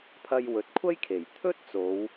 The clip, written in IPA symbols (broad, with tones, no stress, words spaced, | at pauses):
pʰɐ˧jwɵ˨t̚kʷʰɐ˥jkʰe˨˩j t̪ʰɵ˥t̚ t͡so˨˧w